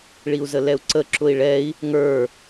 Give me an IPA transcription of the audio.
ɭiu̯zəlɛu̯ǀə ǁʊi̯ɭɛi̯ | ŋə˞

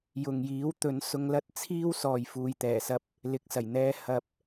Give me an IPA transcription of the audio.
jʊ˨ŋjiː˨˥w t̪ɵ˨˥n sʊ˧ŋlɐ˥t̚t͡sʰiː˥w sɔː˨jfuː˨jt̪ɛː˨˩sɐ˧p̚ | lɪ˨k̚sɐ˨˩jn̪ɛː˧ hɐ˧p̚

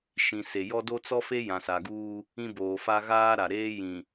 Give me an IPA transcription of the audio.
ʃĩ˨ se˨jɔ˦ do˦t͡sɔ˦fe˦ jã˨sa˨ɡuː˦ | ĩ˦boː˨fa˦ ɣaː˦ɾa˨ɾeː˦ jĩ˨

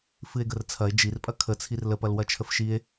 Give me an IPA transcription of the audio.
fɨe̯ɡərt͡sʰɐe̯ d͡ʒirpʼɐ kʰət͡sʰir ləpɐl wɐt͡ʃʰəfʃie̯

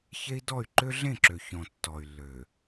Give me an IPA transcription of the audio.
çe˦i̯dɔ˦˨y̯ ǃø˦ɮẽ˦˨ǁø˨ çɔ̃˨ tːɔ˨y̯lːø˨

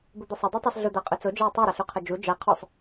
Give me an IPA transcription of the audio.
bʊd̪əsˤʊ dˤə˞tˤisɮʊ d̪aqʼɵt͡so d͡ʒawtˤo ɾaɬuqʰɐd͡ʒu d͡ʒa qʰɔsˤ

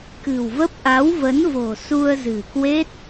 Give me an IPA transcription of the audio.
kɨ̤˨˩wvə˦˥p̚ ʔa˨˦wvə˨˦nvo̤˨˩ su˧ə̯zɨ̤˨˩kwe˦˥t̚

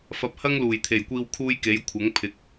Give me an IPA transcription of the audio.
fɐ˧p̚ hɐ˥ŋluː˨˩jt̪ʰe˨˩jkʷiː˧w kʰuː˥jke˨˥jkʷʰɐ˨˥ŋ pʰɪ˨˥k̚

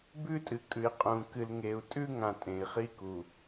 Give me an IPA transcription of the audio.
bʉ˦tʼɨ˨kʼʉ˨i̯ qʼũ˨ kɨ˨lŋe˨u̯ tʼʉ˦ŋã˨ tʼẽ˨i̯χi˦ku˨

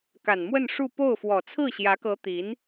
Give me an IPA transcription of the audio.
ka˨˩nmwə˥˧nʂu˥˧ po˥˩ʊ̯fwɔ˨˩ t͡sʰɹ̩˥˩ɕjä˧˥kɤ˧˥ t̪i˧˥n

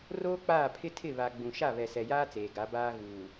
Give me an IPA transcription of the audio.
roː˦k͡paː˦˨ pʰɪ˦ tʰɪ˦˨βa˨ɡ͡bũ˨ ʃa˦˨βɛ˨ sɛ˨jaː˦ t͡seː˨ɡa˨˦ baː˦ɣuː˨

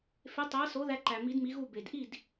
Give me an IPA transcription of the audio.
fe˩˥tˤæ˩˥so˩˥ ðæ˧ǃæ˩ mi˩˥dmi˩˥ɣu˥˩ be˩dʔi˥˩d

